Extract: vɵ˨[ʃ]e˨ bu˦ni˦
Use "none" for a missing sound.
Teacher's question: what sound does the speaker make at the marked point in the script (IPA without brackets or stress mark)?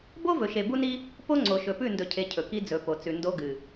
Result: ʃ